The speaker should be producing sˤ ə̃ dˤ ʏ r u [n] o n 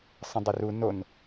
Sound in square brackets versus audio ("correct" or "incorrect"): correct